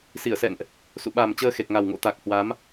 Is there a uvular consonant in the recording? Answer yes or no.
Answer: no